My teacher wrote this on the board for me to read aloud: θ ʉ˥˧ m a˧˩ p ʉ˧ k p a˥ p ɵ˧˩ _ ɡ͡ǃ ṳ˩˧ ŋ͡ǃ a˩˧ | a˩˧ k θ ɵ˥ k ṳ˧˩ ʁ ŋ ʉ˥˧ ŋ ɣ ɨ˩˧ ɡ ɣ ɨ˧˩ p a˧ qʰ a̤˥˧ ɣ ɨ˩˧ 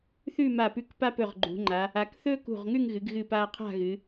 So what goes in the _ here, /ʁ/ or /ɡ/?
ʁ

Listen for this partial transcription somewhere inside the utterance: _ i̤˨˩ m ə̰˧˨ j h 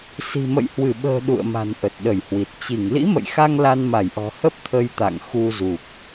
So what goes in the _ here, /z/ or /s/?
s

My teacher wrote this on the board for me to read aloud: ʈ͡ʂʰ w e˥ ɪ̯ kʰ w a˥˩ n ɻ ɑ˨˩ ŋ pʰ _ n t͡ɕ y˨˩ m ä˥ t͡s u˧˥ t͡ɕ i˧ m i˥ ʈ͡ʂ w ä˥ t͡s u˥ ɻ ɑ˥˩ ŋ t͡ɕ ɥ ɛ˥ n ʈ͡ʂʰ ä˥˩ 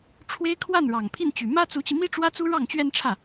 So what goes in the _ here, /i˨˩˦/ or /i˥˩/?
i˥˩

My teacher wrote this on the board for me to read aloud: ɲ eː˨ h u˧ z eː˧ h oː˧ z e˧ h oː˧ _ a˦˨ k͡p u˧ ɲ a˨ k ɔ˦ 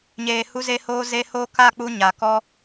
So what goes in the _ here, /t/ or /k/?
k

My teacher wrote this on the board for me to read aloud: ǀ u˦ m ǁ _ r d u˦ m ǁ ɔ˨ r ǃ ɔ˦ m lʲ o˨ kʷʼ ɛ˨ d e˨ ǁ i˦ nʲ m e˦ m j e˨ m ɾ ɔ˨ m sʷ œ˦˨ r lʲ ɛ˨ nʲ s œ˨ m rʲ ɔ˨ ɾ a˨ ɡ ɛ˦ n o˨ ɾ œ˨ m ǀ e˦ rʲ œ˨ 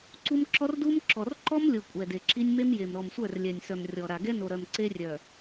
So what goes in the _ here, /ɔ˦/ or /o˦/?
ɔ˦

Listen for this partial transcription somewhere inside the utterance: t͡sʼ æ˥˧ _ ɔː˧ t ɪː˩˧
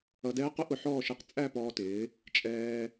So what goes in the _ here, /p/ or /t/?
p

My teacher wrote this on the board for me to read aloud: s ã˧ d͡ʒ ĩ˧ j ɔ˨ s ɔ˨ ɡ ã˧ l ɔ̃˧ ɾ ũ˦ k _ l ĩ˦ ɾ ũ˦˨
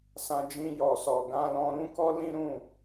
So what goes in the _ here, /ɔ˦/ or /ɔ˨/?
ɔ˦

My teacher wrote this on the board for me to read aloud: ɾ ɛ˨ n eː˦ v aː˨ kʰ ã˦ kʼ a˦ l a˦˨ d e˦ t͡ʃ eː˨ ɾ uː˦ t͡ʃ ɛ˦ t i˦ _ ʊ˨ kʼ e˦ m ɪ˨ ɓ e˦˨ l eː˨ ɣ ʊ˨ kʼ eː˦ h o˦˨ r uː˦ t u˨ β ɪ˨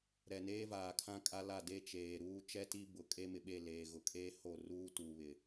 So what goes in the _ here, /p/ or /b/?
b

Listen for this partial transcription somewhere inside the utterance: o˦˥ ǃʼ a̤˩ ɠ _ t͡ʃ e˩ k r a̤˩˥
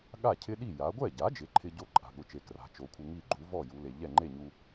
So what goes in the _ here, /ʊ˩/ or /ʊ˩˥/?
ʊ˩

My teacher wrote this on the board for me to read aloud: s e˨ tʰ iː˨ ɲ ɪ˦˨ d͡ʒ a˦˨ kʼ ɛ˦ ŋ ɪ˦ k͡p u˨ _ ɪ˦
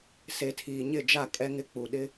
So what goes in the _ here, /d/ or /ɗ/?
ɗ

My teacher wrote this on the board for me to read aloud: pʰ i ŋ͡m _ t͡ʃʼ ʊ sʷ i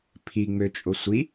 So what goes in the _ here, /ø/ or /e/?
ø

